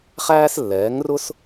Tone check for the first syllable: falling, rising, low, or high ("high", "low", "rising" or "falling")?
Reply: high